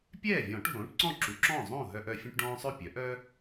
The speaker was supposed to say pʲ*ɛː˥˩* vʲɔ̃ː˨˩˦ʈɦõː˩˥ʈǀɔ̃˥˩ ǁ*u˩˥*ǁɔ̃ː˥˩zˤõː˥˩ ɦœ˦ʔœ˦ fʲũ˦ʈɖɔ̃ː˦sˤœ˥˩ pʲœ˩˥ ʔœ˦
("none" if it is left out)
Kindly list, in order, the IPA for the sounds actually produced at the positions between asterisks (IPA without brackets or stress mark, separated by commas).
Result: ɛː˥˩, u˩˥